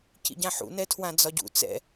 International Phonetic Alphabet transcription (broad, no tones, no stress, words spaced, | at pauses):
cḭɟãħṵ nɛtʰwãd͡zɒɟṵ t͡sɛ̰